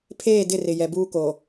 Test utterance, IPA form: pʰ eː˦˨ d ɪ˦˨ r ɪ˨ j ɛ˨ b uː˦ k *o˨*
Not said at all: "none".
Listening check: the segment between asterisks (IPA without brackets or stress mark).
o˨